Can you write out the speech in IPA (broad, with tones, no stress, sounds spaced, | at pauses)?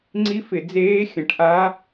ŋ͡ǀ i˦˥ f ɪ˨˩˦ d͡z eː˦˥ xʲ ə̃˨˩˦ ʈ ʔ a˦˥